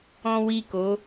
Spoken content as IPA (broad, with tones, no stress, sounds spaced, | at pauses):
ɔ̃˦ w i˦˨ k o˨˦